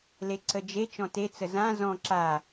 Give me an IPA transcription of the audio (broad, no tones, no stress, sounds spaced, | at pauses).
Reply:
l e ǀ ə d͡ʒ e t͡ʃ ɔ̃ t e t͡s ə z ã z ɔ̃ ǁ a